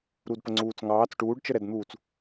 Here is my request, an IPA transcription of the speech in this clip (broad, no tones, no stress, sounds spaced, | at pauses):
ɾ u d p ə ŋ͡ǀ uː t͡s ŋ ɑː t͡s ʈ uː ɖ t͡ʃ ə ɾ ɛ d n̪ uː t͡s